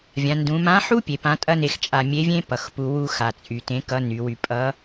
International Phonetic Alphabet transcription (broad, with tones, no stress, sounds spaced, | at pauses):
vʲ ã˩˧ n d ũ˩˧ m ã˧˥ ħ u˥ pʲ e˩˧ p ã˧˥ tʼ ɐ˥ n e˧ x t͡ʃʼ a˧ mʲ e˧˥ vʲ ẽ˥ p ʌ˩˧ x p u˧ w u˧ x a˩ t͡sʼ y˩ t ẽ˧˥ k ʌ˧˥ n y˩˧ w y˧ pʼ ʌ˧˥